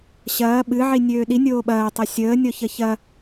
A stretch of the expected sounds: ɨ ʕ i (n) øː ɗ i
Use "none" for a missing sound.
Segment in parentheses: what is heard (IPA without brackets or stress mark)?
nʲ